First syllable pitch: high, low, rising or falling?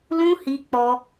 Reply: high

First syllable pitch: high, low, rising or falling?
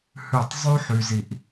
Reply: falling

